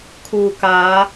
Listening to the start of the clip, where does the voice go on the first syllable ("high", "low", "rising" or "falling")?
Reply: low